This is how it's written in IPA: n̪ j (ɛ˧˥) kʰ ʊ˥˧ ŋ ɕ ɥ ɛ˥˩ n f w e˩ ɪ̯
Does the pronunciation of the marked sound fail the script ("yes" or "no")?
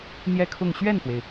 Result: yes